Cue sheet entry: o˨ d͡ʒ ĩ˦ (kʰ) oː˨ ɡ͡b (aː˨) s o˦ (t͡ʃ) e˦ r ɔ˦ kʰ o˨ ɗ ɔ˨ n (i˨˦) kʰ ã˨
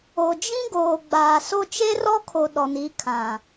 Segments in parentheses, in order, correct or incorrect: incorrect: ɡ, correct, correct, correct

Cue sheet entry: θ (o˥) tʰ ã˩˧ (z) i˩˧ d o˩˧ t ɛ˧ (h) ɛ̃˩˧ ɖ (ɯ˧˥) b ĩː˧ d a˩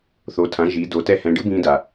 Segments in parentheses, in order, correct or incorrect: incorrect: o˩˧, incorrect: ʒ, correct, correct

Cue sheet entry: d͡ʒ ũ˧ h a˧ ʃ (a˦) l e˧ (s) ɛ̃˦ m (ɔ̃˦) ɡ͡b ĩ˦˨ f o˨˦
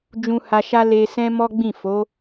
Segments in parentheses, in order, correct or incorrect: correct, correct, incorrect: ɔ˦

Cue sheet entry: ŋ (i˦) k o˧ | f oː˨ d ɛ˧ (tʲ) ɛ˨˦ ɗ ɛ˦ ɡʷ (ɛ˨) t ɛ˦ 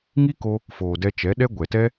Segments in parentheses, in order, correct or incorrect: correct, incorrect: t͡ʃ, correct

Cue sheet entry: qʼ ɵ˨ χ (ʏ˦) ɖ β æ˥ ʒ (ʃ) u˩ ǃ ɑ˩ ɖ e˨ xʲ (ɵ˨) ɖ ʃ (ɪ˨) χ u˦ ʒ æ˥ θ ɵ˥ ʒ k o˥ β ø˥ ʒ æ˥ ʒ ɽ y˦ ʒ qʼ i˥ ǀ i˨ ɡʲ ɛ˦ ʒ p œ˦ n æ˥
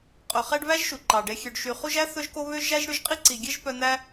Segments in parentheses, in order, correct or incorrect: incorrect: ɛ˦, correct, incorrect: ø˨, incorrect: y˨

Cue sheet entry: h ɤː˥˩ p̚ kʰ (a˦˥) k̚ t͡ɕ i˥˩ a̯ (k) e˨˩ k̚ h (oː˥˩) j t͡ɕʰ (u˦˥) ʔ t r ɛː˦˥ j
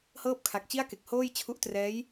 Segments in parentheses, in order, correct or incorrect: incorrect: a˨˩, correct, correct, correct

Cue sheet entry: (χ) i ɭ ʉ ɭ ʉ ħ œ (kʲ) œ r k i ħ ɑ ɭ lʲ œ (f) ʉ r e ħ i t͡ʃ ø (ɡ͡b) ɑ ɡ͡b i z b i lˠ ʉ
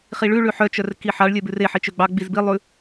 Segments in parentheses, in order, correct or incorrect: correct, incorrect: t͡ʃ, incorrect: b, correct

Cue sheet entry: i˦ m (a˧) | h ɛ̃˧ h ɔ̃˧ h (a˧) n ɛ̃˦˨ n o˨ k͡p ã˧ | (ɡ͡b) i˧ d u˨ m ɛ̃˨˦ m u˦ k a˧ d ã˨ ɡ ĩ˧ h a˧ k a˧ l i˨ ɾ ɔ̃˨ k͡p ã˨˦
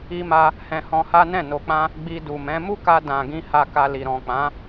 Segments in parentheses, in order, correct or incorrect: incorrect: a˦, incorrect: a˦, correct

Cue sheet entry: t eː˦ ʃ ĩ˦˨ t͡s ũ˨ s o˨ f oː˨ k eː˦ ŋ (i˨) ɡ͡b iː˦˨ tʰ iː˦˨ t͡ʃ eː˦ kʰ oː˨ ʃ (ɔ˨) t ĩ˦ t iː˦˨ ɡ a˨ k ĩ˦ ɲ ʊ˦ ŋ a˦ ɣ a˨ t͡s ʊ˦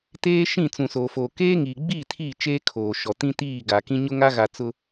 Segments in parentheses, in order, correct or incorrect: incorrect: iː˨, correct

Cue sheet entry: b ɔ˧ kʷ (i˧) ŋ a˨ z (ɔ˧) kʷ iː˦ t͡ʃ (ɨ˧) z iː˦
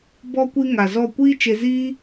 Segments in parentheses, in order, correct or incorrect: correct, incorrect: ɔ˦˨, incorrect: e˧

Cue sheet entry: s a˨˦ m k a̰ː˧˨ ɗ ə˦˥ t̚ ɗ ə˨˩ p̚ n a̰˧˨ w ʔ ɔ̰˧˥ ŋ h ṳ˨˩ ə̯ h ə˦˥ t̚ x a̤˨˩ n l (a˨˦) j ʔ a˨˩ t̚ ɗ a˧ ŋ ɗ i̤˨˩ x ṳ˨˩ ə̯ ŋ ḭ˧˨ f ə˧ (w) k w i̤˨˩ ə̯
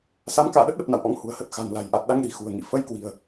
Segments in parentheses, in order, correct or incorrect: incorrect: a̤˨˩, incorrect: j

